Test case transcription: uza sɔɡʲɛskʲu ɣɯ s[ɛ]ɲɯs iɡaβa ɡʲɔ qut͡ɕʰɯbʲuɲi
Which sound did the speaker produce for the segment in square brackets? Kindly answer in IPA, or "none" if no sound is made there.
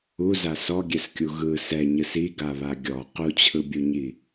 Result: ɛ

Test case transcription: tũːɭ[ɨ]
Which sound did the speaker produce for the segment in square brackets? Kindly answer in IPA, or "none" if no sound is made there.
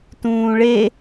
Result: e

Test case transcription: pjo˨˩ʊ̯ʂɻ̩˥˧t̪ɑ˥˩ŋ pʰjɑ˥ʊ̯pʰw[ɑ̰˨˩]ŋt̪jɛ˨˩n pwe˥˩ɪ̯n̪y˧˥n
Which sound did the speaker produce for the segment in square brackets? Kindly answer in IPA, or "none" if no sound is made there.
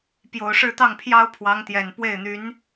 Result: ɑ˧˥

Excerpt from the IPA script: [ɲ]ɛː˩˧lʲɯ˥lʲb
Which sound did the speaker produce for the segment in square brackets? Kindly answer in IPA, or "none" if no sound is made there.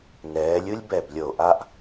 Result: n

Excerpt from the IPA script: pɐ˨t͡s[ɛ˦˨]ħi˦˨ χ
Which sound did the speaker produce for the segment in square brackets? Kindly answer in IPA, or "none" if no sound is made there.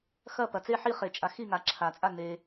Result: e˦˨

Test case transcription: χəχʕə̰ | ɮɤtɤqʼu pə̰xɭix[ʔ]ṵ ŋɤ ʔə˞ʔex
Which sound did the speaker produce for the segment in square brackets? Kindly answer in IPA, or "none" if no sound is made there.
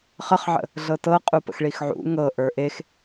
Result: ʕ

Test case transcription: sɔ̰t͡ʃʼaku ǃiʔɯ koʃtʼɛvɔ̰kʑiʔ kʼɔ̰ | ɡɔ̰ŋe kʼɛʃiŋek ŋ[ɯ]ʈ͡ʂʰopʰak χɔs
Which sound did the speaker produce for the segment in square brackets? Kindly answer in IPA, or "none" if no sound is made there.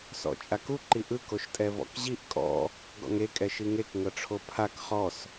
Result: ɤ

